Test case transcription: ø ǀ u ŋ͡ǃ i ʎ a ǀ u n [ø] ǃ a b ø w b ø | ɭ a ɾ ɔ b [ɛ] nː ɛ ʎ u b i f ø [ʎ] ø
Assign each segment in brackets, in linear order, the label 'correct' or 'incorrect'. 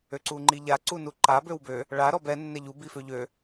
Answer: incorrect: u, correct, correct

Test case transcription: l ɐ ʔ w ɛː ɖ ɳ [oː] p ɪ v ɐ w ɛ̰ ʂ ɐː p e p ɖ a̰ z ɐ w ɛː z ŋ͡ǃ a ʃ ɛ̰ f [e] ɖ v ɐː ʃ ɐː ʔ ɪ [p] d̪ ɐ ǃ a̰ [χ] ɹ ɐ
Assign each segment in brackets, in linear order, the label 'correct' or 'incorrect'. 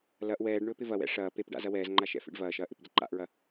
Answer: incorrect: ɵː, incorrect: ḛ, correct, incorrect: ʔ

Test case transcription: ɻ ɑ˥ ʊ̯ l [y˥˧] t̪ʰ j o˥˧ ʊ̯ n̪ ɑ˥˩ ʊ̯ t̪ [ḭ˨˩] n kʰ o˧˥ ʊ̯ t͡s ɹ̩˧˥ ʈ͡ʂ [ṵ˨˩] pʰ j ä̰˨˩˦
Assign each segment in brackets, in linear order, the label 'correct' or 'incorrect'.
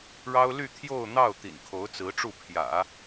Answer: correct, correct, incorrect: u˥˩

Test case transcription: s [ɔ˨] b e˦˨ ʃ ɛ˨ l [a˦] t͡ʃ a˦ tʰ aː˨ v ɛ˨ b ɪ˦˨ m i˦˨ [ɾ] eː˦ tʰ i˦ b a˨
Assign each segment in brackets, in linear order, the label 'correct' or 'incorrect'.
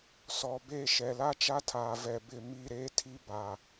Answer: correct, correct, correct

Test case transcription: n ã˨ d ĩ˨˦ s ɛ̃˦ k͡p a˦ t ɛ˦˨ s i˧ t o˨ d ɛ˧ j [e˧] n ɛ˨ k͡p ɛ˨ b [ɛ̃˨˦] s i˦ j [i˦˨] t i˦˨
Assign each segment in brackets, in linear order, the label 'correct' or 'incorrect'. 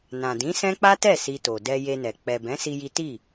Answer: correct, correct, incorrect: i˦

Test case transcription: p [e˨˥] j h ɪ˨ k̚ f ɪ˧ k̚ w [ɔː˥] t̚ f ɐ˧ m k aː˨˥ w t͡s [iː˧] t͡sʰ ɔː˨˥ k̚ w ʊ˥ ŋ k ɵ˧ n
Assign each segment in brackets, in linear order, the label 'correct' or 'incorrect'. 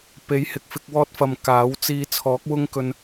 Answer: correct, correct, correct

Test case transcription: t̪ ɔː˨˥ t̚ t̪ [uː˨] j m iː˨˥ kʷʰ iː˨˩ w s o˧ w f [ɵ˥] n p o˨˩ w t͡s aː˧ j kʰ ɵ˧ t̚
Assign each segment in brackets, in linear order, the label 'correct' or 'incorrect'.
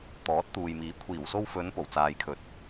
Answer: correct, incorrect: ɵ˨˧

